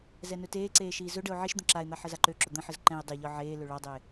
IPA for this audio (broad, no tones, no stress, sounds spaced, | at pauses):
z ɛ n ɵ t eː ǀ eː ʃ iː z ɵ ɖ ə ʊ̯ ʕ i ʃ d̪ ə̃ ǁ a ɪ̯ n̪ a ħ ə z a ǃ ø ǁ ɵ d̪ ə̃ ħ ə z ǃ ɛ̃ ɪ̯ dˤ e ʎ ɒ ʕ eː l ø ɭ ɒ dˤ eː